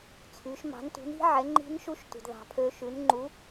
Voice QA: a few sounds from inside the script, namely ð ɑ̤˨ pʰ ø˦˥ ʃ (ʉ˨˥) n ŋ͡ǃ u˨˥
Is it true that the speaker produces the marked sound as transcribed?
yes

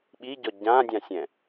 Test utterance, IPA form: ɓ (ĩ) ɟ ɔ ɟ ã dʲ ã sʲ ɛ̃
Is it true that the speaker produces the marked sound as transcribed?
no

